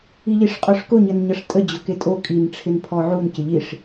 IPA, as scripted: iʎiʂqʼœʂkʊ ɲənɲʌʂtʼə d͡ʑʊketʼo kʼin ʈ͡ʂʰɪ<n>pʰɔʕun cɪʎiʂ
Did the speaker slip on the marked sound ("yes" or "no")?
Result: no